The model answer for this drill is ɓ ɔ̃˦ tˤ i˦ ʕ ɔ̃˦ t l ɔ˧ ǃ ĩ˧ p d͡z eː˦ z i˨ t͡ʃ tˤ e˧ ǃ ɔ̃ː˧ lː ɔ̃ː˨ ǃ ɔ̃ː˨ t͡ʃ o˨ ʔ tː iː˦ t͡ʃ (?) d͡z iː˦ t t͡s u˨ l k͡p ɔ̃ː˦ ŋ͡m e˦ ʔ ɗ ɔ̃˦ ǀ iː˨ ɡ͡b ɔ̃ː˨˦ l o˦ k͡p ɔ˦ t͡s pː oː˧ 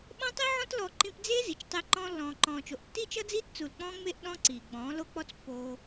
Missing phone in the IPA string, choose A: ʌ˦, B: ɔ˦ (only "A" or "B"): A